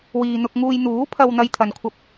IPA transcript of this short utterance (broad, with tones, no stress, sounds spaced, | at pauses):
w iː˨ n̪ ʊ˧ k̚ ŋ uː˧ j n̪ uː˨˥ pʰ ɐ˧ w n̪ ɐ˥ j t̪ʰ ɐ˧ n kʷʰ ɐ˥ p̚